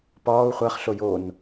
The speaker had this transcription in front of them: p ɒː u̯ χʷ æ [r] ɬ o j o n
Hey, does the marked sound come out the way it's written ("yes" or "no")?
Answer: no